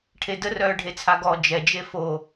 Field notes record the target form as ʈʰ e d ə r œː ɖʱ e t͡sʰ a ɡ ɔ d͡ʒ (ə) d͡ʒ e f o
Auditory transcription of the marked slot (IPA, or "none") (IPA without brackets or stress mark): ɛ